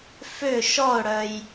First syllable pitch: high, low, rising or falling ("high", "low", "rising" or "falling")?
falling